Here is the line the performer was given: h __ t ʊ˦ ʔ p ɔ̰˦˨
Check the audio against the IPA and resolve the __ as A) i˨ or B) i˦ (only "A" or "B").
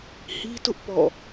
B